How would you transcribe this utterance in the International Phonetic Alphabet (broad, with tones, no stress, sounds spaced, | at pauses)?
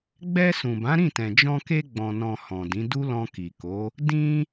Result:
ɡ͡b ɛ˧ s ũ˨ b ã˨˦ ɾ ĩ˦˨ t ɛ̃˨ d͡ʒ ɔ̃˧ k e˧ ɡ͡b ɔ̃˨ n ɔ̃˨ h ɔ̃˨ d ĩ˨˦ d u˦ l ɔ̃˧ k i˨ k o˨˦ | d ĩ˧